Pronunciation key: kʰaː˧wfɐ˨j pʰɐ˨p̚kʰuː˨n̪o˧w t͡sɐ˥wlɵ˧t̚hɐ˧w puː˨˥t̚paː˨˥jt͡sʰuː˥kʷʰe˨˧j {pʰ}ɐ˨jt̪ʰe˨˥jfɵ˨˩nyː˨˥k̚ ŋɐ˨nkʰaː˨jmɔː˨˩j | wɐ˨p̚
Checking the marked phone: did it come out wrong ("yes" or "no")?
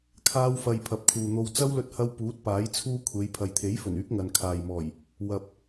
no